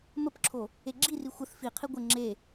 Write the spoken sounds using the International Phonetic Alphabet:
m ə p ǁʰ o | e ɡ͡ǁ i r i xʷ ə θ f i qʰ i ɡʷ ə ŋ͡ǁ e

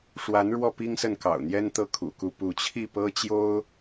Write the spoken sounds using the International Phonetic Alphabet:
ʂ w a˧˥ n ɻ w ɔ˥˩ p i˥ ŋ s ə˥˩ n k ɑ̰˨˩ ʊ̯ n̪ j ɛ˥ n t̪ ɤ˥˩ kʰ ṵ˨˩ k u˥˧ p u˥˧ t͡ɕʰ i˥˩ p ɤ˥ t͡ɕ j o˥ ʊ̯

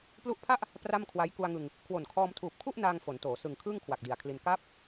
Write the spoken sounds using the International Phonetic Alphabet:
p l u˦˥ ʔ pʰ a˥˩ ʔ | p r a˥˩ m kʰ w a˦˥ j k u˧ a̯ ŋ ɯ˧ ŋ | kʰ w o˨˩ n kʰ ɔː˧ m tʰ uː˨˩ p̚ kʰ u˥˩ ʔ n aː˧ ŋ f o˩˦ n t oː˩˦ s ɯ˨˩ ŋ kʰ ɯː˥˩ ŋ kʰ w a˨˩ k̚ d i˨˩ a̯ kʰ l i˧ n k aː˦˥ p̚

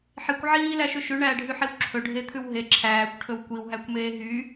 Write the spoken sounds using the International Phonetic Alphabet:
ħ i kʷ ʕ iː l æ ʃ ʉ ʃ ʉ ɳ æː ɖʱ y ħ i w ǁʰ ɵ ɖʱ e t̪ʰ ʉ w ɦ e ǁʰ æː kʷ ʈʰ ɵ w kʷ i w ɦ æ kʷ m eː ɦ y

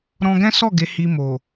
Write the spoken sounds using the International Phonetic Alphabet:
ɾ ɔ̃˧ ɡ ɛ̃˦ s ɔ˦˨ ɡ e˨˦ h i˧ m o˨

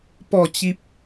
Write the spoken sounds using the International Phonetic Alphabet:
p ɔ˥˧ t͡ɕ i˦ p̚

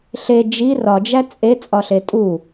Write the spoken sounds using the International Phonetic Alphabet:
ɬ e d͡ʒ i r ɒ d͡ʒ æ t͡sʼ e t͡sʼ ɒ ɬ e tʼ u

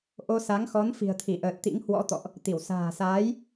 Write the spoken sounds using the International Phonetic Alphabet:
ʔ o˧ s a˨˦ ŋ x ɔ˨˦ n f i̤˨˩ ə̯ t̪ʰ i˧˩ ʔ əː˨˩ t̚ t̪ ḭ˧˥ ŋ h w ɔ̰˧˥ t̪ ɔ̰˧˨ ʔ | t̪ i˧˩ w s a̤ː˨˩ s aː˨˦ j

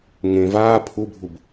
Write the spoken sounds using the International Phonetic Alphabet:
ŋ ẽ v aː pʰ u bʱ u b

